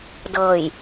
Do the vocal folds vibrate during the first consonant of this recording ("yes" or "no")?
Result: yes